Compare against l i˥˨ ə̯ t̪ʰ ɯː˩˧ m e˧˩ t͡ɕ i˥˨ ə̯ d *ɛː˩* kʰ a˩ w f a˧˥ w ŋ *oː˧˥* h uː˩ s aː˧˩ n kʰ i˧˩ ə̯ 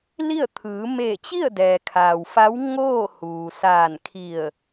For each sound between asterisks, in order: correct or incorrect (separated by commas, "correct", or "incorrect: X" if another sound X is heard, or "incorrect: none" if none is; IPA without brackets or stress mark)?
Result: correct, incorrect: oː˥˨